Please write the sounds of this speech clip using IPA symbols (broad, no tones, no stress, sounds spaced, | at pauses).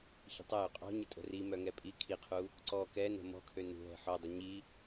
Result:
ç ə̤ tˤ ə j ø qʼ ɔ̤ ɲ ə tʼ ə̤ r i m œ ŋ ɛ pʼ i kʰ i qʰ u | ǀ ɔ k ɛ n ə̤ m ɔ̤ kʰ ø n ṳ ɦ ɛ̤ ħ œ dˤ ɛ ɲ i